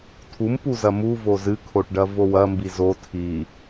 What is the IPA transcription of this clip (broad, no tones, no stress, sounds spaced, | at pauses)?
tʰ u m p u z ɐ m u v o z ɨ kʰ o ʈ ɖ ɐ v o w ɐ m b i z o tʰ i